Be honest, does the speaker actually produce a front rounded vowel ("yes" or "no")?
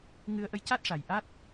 no